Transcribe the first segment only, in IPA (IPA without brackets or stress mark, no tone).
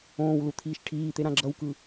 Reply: õː